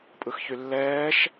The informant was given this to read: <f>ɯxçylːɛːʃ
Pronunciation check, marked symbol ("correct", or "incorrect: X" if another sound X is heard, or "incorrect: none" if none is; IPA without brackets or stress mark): incorrect: pʼ